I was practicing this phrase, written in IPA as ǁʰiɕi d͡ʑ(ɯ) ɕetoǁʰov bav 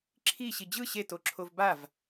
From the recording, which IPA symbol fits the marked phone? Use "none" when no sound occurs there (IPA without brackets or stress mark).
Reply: ɯ